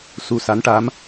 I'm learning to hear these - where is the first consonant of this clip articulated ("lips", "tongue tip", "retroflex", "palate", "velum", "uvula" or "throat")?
tongue tip